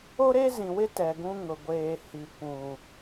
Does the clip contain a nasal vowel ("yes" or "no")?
yes